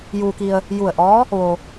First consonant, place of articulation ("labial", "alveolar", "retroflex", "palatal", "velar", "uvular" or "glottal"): palatal